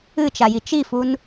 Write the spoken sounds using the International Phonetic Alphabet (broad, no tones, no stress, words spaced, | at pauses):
ɨt͡ʃaji t͡ʃifun